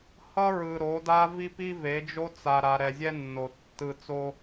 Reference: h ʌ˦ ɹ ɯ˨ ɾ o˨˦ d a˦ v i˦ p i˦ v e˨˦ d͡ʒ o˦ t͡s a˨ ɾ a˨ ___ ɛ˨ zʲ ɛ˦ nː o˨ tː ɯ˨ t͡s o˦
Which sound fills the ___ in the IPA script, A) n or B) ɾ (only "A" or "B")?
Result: B